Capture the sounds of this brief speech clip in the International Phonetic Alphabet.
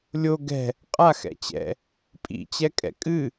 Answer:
lʲo ɡɛ̤ | qʼa xɛ̰t͡ɕɛ̰ | pʼḭ t͡ɕɛkʼɛ̰kʼɨ

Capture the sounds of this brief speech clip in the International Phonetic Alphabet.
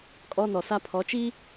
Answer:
kʼɔ˦nɔ˨sa˦ pʰɔ˨˦t͡ʃi˦

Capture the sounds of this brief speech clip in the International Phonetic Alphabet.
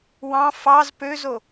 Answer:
wɑ̃ fɑz pøzo

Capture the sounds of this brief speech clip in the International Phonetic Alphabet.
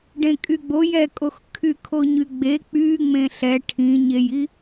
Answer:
ɖẽkʼyɡ͡bo jɛkʼox kʰykʰoɲyɡ͡be k͡py ŋ͡mẽɬɛ ʈʰĩɲeji

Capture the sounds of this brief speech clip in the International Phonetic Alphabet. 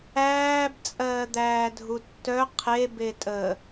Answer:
æːb t͡sʼɜːd̪æːdʱutːœ qʰe betʼə

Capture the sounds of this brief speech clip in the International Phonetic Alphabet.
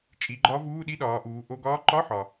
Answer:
t͡ʃʼi˩˧ɡ͡ǃɒ˧˥ vuː˧˥˧ɗi˧˥˧ɗɒː˩˧ʔuː˩˧ ʔo˧˥˧ ɡɒː˧˥ǃɒ˧˥˧ħɒ˩

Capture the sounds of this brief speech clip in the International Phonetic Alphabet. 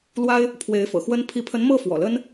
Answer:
lwa˥ɪ̯ | pʰwe˧˥ɪ̯fɤ̰˨˩xwə˥n pʰi˧˥pʰə˧˥nmɤ˥˩ fwɔ̰˨˩lə˥n

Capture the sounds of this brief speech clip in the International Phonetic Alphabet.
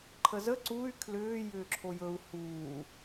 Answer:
ǃʰəzə ǀuy̯ kʰlʏː jʏːǁʰojɵu̯ huː

